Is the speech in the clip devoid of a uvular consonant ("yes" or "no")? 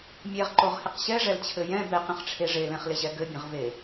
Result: no